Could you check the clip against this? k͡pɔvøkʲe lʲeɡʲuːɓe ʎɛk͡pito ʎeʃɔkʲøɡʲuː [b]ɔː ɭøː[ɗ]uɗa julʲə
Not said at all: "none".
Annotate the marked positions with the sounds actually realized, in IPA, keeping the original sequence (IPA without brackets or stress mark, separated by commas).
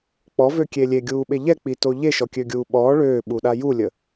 ɓ, ɓ